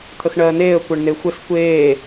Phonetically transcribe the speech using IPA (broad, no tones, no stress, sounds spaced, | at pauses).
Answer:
t̪ʰ ə x ɳ ɜː n eː ə̯ kʷ ɜ ɳ n e xʷ ɘ s kʷ eː